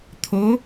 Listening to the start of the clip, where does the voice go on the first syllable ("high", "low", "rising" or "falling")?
rising